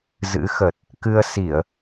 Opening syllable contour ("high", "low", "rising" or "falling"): rising